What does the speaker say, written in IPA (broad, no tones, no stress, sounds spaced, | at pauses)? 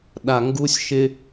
ɗ a ŋ ɡ u sʲ ʃ ɪ